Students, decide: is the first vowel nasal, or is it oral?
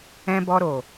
nasal